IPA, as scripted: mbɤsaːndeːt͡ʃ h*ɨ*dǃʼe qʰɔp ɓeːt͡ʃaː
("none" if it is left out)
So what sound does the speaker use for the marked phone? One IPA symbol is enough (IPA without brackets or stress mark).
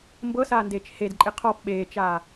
e